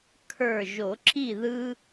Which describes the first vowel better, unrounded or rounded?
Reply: unrounded